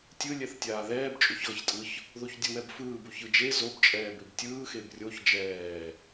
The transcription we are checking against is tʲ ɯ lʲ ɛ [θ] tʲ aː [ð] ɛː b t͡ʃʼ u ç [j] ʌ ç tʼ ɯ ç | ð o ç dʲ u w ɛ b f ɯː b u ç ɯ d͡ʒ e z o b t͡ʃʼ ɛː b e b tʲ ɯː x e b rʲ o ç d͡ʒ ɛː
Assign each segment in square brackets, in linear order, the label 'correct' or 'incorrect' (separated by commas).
correct, correct, incorrect